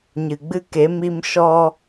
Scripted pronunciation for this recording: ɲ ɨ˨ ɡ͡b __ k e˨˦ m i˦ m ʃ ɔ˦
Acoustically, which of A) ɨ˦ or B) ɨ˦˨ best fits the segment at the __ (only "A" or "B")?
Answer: A